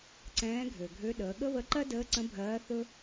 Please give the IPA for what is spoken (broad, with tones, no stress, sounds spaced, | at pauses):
ǀ ɛ̃ː˧˥ ɡʱ ø˩ ɡʱ ø˧˥ ɗ əː˩˧ ɠ ə˥ β ə˧˥ ǃ ɜ˥ d əː˧˥ ǀ ə̃˧˥ bʱ ɜː˧˥ θ ɵ˥